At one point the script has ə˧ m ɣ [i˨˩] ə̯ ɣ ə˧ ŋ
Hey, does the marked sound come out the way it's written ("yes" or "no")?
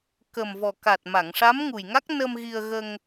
no